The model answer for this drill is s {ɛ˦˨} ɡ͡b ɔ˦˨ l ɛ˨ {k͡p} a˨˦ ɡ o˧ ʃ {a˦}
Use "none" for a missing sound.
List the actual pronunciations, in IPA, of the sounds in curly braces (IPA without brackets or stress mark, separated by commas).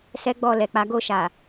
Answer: ɛ˦, k͡p, a˨